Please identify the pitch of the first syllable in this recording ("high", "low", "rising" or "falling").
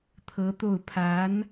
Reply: rising